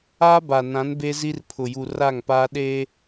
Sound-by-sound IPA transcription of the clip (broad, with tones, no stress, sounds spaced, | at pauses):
aː˦ b a˨ n ã˨˦ n b e˦ z i˦ r pʰ ʊ˨ j u˨ r a˦˨ ŋ p aː˦ ɗ eː˦